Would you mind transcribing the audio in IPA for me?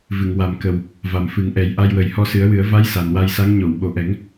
v ɨ˨˩˨ ŋ w a˨˩ m k ə˨˩ w | v a˨˩ m f ɨ˨˩˦ ŋ ʔ ɛ˨˩˦ j ʔ a˧ j w ə˨˩ j h ɔ˧ s ɨ˨˩˦ ə̯ w ɨ˨˩˦ ə̯ v a˧˥ j s a˨˩ n w a˧ j s a˧˥ ŋ ɲ o˨˩˨ w ɓ o˨˩ ʔ ɛ˨˩˦ ŋ

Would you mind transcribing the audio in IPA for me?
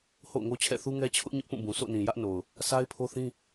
h o̰˦˨ ʊ̯ ŋ o˦ t͡ɕʰ ɛ̰˦˨ θ u˦ ŋ ɛ˦ t͡ɕʰ ʊ˦ ʔ ɲ ʊ˦ ʔ p ũ˦˨ b ũ˨ sʰ o̰˦˨ n ĩ˨ j ä˦ ʔ n o˨ ʊ̯ | sʰ a˦ ɪ̯ pʰ o˦ θ ĩ˦

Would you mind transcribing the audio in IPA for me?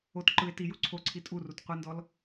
o t ǃ ɯ e̯ t i j u ǀʰ o ǀʰ i tʼ u r u t qʷ ɯ n d ɔ l

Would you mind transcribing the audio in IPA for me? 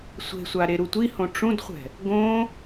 sʷ e̤ sʷ a ɾ e ɾ u tʷ i h õ ʈ͡ʂ ũ d χʷ ɛ̤ | ɡ õ

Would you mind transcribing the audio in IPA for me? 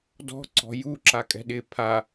d ɔ̤ ǀ ɔ̤ j u ǁ a kʼ ɛ̤ ɗ ɪ pʰ a

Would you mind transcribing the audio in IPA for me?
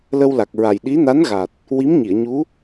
l ə˧ w l a˨˩ k̚ ɹ a˨˩ j ɗ i˧˥ n a˧˥ n ɣ a˨˩ t̚ | w i˧˥ m ɲ i˨˩˨ ə̯ ɲ u˧˥

